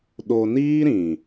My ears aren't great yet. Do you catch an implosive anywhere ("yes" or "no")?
yes